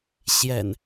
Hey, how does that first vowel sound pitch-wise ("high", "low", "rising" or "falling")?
low